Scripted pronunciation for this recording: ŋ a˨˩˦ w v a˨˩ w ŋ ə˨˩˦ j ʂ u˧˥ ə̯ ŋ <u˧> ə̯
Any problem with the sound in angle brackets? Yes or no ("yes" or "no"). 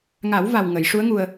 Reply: no